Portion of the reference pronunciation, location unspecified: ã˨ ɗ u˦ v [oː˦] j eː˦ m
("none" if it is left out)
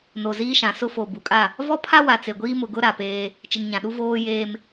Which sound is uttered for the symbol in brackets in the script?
oː˦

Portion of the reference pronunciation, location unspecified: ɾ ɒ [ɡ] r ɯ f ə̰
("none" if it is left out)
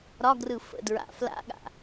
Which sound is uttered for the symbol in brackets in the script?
ɡ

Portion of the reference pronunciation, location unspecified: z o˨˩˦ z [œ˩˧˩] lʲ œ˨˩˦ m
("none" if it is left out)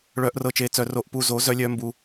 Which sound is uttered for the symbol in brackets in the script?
œ˨˩˦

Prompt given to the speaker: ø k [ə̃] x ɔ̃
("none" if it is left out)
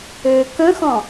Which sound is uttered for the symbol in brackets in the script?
ə̃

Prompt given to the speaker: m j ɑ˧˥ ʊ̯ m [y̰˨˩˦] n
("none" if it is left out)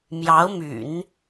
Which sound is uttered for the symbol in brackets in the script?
y̰˨˩˦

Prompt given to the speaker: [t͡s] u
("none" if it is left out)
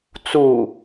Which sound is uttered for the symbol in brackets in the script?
t͡s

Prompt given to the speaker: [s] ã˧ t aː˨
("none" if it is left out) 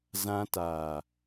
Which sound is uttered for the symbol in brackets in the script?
z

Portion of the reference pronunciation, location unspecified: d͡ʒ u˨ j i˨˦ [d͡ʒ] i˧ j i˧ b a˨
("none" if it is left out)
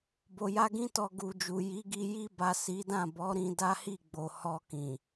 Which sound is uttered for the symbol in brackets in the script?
ɡ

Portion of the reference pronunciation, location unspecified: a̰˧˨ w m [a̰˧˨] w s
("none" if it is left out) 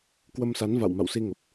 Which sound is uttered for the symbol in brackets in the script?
a̰˧˨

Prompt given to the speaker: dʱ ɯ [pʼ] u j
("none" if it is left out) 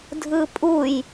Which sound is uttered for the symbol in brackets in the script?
pʼ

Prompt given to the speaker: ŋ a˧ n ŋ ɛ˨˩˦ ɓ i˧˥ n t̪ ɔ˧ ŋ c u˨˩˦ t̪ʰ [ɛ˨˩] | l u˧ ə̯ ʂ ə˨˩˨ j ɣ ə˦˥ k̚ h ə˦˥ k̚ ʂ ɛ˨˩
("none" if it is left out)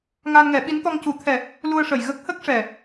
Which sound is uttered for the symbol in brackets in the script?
ɛ˨˩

